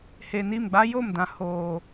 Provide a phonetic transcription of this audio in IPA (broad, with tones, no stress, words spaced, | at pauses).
he˨ni˦˨mɡ͡ba˦ jo˦˨mdã˨ hoː˨